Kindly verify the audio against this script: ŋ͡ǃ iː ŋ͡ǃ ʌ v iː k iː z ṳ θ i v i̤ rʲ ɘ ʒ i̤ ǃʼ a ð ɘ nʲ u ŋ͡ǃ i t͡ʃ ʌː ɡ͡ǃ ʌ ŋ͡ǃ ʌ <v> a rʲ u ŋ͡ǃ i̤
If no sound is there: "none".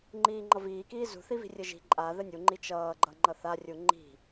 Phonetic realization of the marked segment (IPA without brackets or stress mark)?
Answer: θ